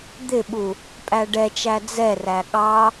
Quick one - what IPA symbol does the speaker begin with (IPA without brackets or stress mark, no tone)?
d̪